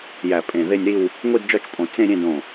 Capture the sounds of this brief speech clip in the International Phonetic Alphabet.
jæ˧˩pʼẽ˧˩ðe˥˧nʲɾi˥˧w | ŋʷi˥˧dd͡ʒɒ˥˧t͡ʃpʼõ˧˩ t͡sẽ˥˧ ɾʲẽ˥˧dõ˧˩

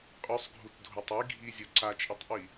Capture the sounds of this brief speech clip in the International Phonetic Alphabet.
qʼʉsˤɡʱutdʱotˤ i ɡʱizʲo ǀat͡ʃʼitˤʔi

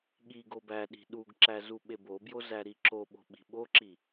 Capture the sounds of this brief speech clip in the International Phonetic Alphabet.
ɠi ɡobæɗi̤ ɗuɡǁæ zuɓebobjo zæɾiǁoɓo̤ ɓi̤ɓoǁi

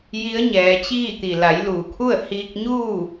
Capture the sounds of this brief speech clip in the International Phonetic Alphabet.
ji˧˥ə̯ɲɛː˩˧t͡ɕiː˥˨t̪i˩ la˩˧jluː˩kʰu˥˨ə̯ hiː˧k̚ɲuː˥˨

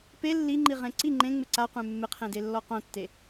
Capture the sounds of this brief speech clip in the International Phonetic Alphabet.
pe lːiŋ͡ǃi ʁẽǀi ŋ͡ǃẽ ŋ͡mɪǀaqʷẽ mːɪqʰẽde lːɔqõtːe

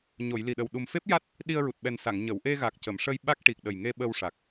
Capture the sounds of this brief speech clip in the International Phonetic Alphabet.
ɲo˨˩˨jli˨˩ɗə˨˩w ɗu˨˩mfe˦˥p̚ja˦˥t̚ | ɗi˧ə̯ɹu˨˩t̚ɓɛ˨˩nsa˨˩˨ŋ ɲə˨˩˨w ʔe˧ɣa˨˩k̚cə˨˩˨mʂə˧j ɓa˦˥k̚ʈi˨˩k̚ ɗə˨˩jŋe˧ ɓə˧wʂa˨˩k̚

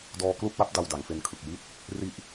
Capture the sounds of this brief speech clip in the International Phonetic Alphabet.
dɔː˧klu˥˩k̚wa˦˥p̚ da˧wda˩˦ŋfe˧nkʰɯ˨˩k̚ ji˦˥t̚ | ri˥˩ʔ

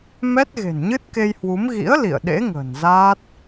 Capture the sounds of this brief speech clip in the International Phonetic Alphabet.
mɛ˦˥t̚ ɣe̤˨˩nɲɨ˦˥t̚ ke˧jhwu˨˦m ɣḭ˧˥ə̯ lḭ˧˨ə̯ɗḛ˧˥ ŋə̤ː˨˩n zaː˦˥t̚

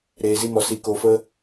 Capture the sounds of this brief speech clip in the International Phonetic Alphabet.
ɾeː˨zi˧mɔ˨ si˨ko˨fə˧

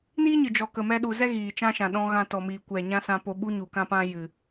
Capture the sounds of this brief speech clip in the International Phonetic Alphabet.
niː˦ɲɨ˨d͡ʒɔ˨ kə˨mɛ˧ɗu˨ zɛ˦ ɣiː˨t͡ʃã˦ʃã˨ ɗɔ̃˧ ɣã˧tɔ˨miː˨ kʷɛ˨ ɲã˦sã˧po˧ɓu˦ ɲu˨kã˦pã˦ jɨ˨

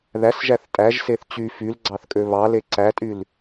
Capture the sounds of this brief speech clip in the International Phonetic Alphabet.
ðæsʒæθ tʼæʒseθ t͡ɕy fyl ɡ͡ǀɑθkʼøβɑle ǀætʼyl

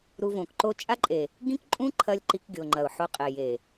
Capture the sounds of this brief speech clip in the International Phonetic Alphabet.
ɾu˧võ˨kǃo˦ t͡ʃʼa˦ǃʼe˨ | ɡĩ˦kǃʼũ˦ ǃʰɐ˦lʲǃi˧k ɡʲo˨ ŋ͡ǃɐ˨ʊ̯ħo˧qʼe˨ je˨

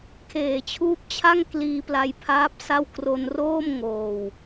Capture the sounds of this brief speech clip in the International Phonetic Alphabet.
kʰeː˨˩t͡ɕʰuː˦˥p̚t͡ɕʰa˥˩ŋ kliː˧ pla˧jpʰaː˦˥p̚sa˥˩w kro˧nroː˥˩mŋoː˨˩w

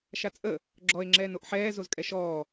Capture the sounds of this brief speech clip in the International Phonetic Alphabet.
ʃat͡sʼə | ɡ͡ǁɔe̯ ŋ͡ǁɛːnoʔħɛː zozkʼɛʃɔː

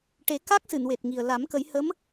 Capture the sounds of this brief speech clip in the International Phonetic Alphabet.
ʈe˨˩˦ka˦˥k̚ sɨ˨˩˨nwe˨˩t̚ŋi˨˩ə̯ la˨˩˦mkə˨˩˦j hə˧˥m

